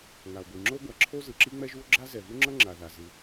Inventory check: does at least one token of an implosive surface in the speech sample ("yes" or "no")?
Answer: no